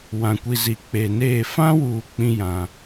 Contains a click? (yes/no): no